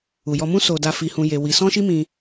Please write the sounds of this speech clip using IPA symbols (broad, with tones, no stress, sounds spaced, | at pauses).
u˨ j ɔ˧ m ũ˦ s o˧ d a˧ f i˧ h ũ˧ j e˧ w i˧ s ɔ̃˦ ʃ i˦ m ĩ˧